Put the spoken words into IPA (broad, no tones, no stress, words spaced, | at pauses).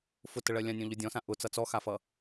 fʊtəɭɜ lʲãnʲɔ̃ ʎʊdʲɔ̃sã ʔʊ t͡sʌt͡sɔxafʌ